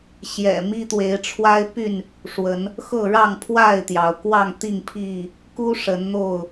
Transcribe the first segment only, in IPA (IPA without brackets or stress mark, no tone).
ɕ